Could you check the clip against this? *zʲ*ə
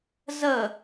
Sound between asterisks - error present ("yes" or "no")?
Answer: yes